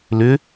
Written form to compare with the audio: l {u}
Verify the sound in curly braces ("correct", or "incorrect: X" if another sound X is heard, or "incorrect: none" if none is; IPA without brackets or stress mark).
incorrect: ʏ